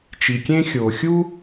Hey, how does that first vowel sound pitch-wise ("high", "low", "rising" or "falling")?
low